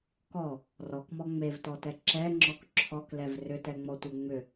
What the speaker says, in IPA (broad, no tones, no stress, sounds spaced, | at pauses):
k ɔ | r ɔ k m ɔ ŋ͡m e v t ɔ t ɛ ǁ ɛ ŋ͡ǁ ɔ k ǁʰ ɔ k l ɛ v r ʏ t ɛ ŋ͡m ɔ tʷ e ŋ͡m ʏ